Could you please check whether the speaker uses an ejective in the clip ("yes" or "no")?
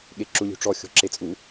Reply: yes